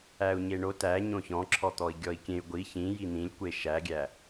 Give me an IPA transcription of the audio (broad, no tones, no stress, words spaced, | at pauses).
æu̯ɲeɳot æɲõ çɔ̃ǁʰɔt̪ɔi̯ɡʲɔi̯ kʲẽy̯ ɡʷi çĩji n̪ĩlʲkʷe ʃæɡʲæ